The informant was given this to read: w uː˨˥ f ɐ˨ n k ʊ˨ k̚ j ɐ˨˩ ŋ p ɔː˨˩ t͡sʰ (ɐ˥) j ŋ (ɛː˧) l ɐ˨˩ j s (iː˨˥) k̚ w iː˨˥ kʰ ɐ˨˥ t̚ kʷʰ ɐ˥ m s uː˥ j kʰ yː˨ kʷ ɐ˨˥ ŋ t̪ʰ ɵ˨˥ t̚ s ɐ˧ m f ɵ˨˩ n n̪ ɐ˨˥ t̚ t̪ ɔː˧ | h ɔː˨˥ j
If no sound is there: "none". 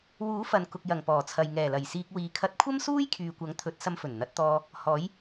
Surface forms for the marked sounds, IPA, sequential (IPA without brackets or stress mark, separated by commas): ɐ˨, ɛː˨˩, iː˧